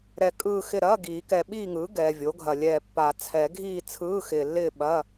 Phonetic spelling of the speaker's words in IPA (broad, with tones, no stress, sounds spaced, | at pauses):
ɾ ɛ˨ kʼ ɯː˥˨ x ɪ˥˨ ɾ ɐː˧˥˧ ɡ iː˨˩˦ k ɛ˨ ɓ iː˥˨ ŋ ɯː˩˥ ɡ ɛː˨ vʲ o˩˥ ɡʱ ɐ˨ lʲ ɛː˨ pː a˨˩˦ t͡sʰ ɛ˨˩˦ ɡʱ iː˥˨ t͡sʰ ɯː˧˥˧ x ɪː˨ lː ɪː˥˨ ɓ ɐ˧˥˧